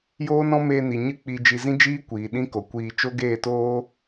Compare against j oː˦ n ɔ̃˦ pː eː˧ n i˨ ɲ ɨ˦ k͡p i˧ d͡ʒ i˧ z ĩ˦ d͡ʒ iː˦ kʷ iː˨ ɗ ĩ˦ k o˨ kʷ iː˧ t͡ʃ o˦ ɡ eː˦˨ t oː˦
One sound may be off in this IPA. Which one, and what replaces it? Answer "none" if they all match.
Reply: pː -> m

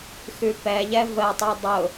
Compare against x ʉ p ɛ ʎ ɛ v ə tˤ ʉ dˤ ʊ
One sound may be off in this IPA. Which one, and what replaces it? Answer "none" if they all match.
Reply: none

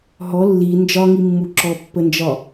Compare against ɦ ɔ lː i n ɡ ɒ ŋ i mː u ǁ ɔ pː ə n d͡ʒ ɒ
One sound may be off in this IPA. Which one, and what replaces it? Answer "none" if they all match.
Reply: ɡ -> d͡ʒ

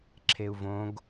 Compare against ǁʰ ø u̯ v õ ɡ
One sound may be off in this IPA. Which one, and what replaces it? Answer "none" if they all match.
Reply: ø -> e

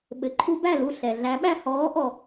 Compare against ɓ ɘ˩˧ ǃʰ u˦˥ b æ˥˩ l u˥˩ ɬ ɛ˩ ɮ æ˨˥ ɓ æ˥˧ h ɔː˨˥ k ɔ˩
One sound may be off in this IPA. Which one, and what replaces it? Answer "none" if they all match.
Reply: k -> ʔ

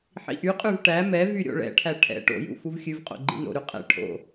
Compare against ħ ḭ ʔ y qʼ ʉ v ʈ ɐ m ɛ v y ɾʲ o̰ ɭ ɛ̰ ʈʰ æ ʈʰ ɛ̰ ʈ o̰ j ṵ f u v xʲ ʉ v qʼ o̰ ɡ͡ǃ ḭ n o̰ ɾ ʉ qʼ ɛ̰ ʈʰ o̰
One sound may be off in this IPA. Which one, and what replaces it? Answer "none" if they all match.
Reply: ɐ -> æ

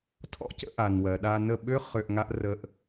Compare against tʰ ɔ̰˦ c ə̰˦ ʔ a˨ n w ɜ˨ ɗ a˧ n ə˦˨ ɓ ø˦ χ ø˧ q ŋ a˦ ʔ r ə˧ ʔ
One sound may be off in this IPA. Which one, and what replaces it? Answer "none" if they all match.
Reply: q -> ʔ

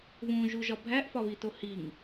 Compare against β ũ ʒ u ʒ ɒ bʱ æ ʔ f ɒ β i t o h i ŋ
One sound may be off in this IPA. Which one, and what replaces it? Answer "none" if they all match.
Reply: none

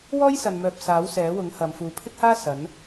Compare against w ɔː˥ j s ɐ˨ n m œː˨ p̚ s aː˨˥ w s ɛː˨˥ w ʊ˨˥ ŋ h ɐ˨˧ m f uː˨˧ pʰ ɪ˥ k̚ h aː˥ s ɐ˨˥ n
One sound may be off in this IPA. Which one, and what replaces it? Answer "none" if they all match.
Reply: none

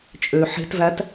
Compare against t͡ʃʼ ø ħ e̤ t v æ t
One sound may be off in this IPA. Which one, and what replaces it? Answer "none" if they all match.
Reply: none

